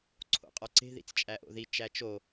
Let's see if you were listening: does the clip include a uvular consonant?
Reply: yes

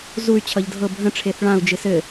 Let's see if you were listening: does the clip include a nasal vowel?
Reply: yes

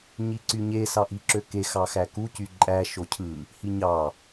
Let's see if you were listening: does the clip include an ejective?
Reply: yes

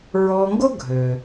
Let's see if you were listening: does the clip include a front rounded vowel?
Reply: yes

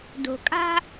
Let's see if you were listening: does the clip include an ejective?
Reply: yes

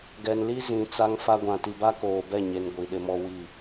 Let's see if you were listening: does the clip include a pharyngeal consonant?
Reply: no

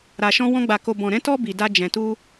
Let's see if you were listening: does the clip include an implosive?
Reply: no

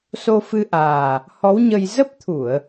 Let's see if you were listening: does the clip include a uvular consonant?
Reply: no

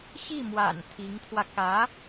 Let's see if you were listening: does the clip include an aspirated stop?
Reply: yes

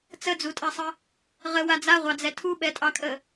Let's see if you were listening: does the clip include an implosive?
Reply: yes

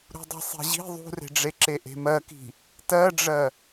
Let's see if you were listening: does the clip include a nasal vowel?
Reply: no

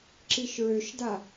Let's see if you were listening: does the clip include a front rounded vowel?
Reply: yes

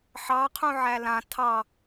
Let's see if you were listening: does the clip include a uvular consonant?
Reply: yes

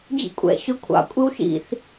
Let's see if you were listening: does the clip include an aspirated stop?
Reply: yes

